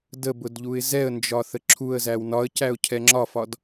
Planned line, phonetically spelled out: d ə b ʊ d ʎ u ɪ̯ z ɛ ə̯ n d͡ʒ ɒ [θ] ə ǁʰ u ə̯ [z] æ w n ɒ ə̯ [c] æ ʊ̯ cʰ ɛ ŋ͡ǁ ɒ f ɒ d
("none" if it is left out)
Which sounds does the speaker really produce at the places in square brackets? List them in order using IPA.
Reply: θ, z, c

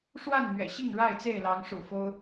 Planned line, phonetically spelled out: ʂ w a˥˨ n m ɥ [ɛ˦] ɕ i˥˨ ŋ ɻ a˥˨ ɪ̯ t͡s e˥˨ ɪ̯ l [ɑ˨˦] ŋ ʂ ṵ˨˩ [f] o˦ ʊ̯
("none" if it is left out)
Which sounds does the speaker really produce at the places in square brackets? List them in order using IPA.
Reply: ɛ̰˨˩, ɑ˨˦, f

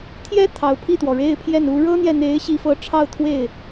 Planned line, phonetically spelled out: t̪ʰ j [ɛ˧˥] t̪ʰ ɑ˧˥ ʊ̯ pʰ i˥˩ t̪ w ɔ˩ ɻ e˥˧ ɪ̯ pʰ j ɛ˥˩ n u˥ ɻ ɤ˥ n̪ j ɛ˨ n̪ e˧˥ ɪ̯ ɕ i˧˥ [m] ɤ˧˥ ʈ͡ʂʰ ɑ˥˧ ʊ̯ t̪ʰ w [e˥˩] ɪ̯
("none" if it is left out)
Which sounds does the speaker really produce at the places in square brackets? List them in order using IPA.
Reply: ɛ˥, f, e˥˩

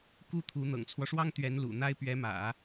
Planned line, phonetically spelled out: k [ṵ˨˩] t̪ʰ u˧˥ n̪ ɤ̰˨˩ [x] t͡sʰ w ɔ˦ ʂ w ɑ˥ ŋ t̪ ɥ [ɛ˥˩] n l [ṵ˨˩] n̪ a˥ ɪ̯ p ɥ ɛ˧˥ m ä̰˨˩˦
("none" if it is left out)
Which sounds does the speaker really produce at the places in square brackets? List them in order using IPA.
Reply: u˥˩, ŋ, ɛ˧˥, ṵ˨˩

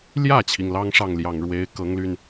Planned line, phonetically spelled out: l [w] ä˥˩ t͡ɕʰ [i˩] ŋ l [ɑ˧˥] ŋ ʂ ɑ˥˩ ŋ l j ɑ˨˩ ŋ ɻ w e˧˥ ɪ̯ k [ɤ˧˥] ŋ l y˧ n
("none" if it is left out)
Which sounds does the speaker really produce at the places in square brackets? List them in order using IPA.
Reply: j, i˩, ɑ˥, ɤ˧˥

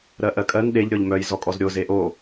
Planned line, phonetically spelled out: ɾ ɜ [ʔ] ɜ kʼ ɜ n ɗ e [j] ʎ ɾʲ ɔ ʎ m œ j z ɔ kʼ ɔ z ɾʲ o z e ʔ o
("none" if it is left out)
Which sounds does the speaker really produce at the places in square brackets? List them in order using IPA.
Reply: ʔ, none

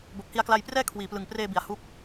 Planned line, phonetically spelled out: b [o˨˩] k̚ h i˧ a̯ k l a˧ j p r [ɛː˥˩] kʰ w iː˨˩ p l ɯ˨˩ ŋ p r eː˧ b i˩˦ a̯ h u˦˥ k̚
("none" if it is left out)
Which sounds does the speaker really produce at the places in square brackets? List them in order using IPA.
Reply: o˨˩, ɛː˥˩

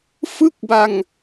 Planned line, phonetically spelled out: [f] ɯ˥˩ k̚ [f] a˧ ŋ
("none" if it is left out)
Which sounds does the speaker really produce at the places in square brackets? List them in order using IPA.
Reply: f, b

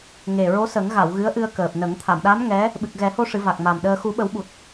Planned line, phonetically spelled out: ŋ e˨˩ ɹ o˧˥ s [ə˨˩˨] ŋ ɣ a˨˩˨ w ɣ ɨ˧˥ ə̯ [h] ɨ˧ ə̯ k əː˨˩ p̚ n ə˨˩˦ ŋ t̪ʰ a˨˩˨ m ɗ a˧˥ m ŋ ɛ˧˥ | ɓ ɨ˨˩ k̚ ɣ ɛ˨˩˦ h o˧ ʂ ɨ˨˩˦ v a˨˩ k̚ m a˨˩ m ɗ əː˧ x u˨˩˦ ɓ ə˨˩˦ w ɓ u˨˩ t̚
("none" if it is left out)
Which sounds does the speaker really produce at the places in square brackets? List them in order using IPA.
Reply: ə˨˩˦, ʔ

